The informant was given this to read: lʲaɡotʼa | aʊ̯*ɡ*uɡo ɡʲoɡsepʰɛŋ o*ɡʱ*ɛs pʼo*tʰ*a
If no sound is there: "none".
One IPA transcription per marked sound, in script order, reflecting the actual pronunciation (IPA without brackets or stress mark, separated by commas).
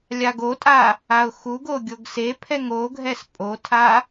x, ɡʱ, tʰ